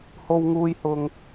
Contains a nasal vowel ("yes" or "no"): no